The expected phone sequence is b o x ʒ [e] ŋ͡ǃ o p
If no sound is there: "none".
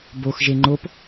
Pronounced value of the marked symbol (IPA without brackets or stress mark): e